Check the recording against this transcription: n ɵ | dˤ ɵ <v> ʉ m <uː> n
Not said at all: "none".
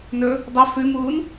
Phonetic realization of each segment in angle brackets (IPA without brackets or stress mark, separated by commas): f, uː